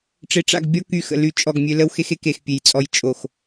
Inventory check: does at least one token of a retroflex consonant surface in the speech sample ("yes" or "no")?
yes